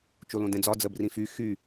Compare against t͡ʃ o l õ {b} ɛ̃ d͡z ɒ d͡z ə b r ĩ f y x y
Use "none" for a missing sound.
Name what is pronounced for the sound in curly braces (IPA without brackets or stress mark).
d